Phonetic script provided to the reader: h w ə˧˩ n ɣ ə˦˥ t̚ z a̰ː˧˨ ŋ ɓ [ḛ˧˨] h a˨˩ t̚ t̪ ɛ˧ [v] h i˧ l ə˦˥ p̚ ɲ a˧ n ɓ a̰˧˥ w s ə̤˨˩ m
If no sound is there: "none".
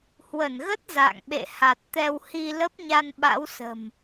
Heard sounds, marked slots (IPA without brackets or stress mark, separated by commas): ḛ˧˨, w